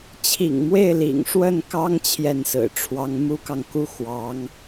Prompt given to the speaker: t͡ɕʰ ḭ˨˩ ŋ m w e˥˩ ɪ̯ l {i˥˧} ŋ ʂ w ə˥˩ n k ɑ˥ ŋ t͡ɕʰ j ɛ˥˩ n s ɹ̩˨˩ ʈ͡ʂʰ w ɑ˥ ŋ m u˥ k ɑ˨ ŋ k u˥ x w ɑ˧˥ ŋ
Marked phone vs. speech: incorrect: ḭ˨˩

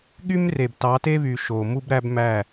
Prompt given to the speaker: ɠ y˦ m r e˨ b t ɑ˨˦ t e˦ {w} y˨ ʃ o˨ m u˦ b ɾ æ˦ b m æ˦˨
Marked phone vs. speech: incorrect: β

